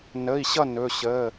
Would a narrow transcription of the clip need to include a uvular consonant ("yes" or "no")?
no